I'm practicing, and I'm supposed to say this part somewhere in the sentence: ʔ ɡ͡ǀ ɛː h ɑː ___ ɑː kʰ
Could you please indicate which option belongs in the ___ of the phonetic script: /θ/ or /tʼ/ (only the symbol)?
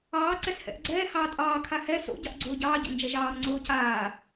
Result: tʼ